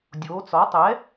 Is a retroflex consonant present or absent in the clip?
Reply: absent